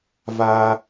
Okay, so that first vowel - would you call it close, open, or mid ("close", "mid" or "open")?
open